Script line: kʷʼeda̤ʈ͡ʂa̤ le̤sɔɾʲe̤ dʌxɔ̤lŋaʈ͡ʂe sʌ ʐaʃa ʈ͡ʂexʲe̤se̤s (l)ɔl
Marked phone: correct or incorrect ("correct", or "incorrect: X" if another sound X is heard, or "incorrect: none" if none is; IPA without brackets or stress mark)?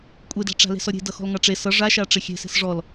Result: incorrect: ʐ